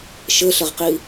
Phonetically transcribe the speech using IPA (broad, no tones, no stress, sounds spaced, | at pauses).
ʃ ɘ ɬ ɘ ʁ q i